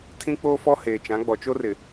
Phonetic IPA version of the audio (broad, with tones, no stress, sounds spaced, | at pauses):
tʰ ĩ˦ k͡p oː˦ f ɔ˦ h eː˨ t͡ʃ ã˨˦ ɡ͡b ɔ˨ t͡ʃ o˦ r ɪ˨